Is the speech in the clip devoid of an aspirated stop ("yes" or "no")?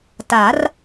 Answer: yes